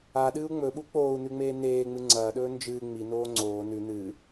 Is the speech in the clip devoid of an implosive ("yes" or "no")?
no